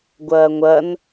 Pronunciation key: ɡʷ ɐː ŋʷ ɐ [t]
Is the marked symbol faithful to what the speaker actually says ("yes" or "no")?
no